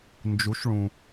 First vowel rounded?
yes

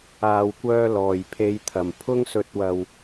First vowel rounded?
no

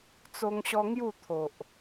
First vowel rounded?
yes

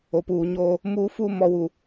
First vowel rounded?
yes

